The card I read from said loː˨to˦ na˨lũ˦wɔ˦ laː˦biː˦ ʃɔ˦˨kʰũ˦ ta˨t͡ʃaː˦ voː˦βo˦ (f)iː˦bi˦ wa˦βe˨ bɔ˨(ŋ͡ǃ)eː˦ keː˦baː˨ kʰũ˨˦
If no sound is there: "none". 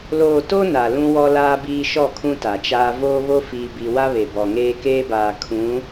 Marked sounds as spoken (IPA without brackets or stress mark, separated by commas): f, ŋ